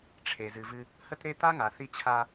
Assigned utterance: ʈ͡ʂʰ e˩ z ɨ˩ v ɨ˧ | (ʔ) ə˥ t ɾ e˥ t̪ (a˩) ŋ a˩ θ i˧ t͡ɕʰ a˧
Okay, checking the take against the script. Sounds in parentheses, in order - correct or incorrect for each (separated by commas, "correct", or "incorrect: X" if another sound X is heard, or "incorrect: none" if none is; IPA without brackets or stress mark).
incorrect: h, incorrect: a˥